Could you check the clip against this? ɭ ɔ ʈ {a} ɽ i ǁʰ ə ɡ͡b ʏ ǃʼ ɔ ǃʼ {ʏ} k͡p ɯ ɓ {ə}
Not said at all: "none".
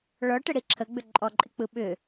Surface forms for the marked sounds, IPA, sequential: ə, ɪ, ʏ

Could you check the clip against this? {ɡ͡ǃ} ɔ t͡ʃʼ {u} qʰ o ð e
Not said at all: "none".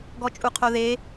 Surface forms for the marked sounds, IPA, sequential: ɡ, u

